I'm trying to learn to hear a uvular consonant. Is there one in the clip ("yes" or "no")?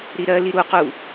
yes